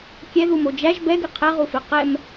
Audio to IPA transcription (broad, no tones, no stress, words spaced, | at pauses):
kʲɛðumo d͡ʒæʒ bɛɡɘ qʰɛʁufe qɛm